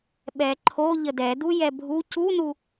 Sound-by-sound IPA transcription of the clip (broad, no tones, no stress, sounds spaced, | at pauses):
ɓ ɛ ǃʰ o ʎ ə d ɛ d u j ɛ bʱ u c u n u